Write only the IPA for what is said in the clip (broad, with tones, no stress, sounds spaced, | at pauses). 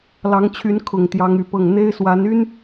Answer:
l ɑ˧˥ ŋ t͡ɕʰ y˧˥ n kʰ ʊ˨˩ ŋ t̪ j ɑ˧˥ ŋ y˨˩ p ɤ˥˩ ŋ n̪ e˥ ɪ̯ s w a˧˥ n y˥ n